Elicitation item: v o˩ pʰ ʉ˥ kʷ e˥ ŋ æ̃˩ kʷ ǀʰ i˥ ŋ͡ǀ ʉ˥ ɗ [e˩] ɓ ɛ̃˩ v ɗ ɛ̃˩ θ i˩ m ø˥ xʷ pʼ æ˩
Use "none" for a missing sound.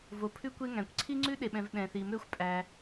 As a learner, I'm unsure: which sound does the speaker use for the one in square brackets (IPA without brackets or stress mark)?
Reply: e˩